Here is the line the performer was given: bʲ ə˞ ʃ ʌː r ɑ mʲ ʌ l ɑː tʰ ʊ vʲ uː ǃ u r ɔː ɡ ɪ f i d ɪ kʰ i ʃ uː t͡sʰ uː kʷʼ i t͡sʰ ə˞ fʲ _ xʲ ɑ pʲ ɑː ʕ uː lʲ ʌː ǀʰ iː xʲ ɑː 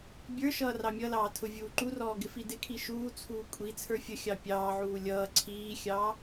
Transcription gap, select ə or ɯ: ə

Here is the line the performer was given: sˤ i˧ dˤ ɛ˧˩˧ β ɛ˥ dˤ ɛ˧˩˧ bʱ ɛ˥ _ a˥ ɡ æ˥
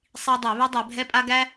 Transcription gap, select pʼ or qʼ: pʼ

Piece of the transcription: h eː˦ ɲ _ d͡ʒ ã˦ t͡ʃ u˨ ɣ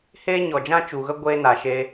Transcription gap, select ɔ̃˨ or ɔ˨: ɔ˨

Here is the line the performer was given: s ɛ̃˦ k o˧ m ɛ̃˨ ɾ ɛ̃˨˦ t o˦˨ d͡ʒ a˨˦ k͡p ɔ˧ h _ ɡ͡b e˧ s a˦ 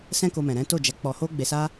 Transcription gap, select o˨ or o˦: o˦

